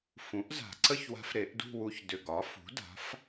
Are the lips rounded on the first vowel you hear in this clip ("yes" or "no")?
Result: yes